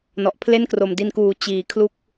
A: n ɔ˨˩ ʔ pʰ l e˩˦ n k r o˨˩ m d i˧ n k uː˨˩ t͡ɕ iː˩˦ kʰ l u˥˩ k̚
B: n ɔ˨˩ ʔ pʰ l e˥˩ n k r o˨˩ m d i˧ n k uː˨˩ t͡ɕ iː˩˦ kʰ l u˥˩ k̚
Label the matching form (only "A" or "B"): B